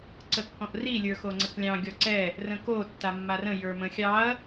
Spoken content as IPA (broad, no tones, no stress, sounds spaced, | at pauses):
ǀ ə kː ɔ̃ ʔ r i lʲ ə˞ x o ŋ͡ǀ ə k lʲ ɑ̃ ɡʲ ɔ ǀ ɛ | r ə̃ k o tː a mː a r ə̃ j ə˞ m ə̃ xʲ ɑ ɐ̯